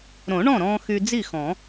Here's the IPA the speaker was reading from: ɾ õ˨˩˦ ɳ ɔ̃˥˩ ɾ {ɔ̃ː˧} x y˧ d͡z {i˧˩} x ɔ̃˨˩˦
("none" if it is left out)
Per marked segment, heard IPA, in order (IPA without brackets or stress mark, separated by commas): ɔ̃ː˧, i˥˩